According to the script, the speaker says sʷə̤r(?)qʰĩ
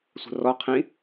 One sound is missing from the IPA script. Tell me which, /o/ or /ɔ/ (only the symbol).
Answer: ɔ